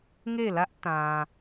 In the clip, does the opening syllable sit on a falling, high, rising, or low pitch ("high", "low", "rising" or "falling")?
falling